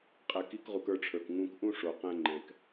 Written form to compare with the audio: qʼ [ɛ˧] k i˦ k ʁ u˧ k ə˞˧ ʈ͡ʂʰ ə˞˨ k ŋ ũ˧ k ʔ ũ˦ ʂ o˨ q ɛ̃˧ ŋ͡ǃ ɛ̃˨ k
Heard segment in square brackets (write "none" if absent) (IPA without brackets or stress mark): ɛ˧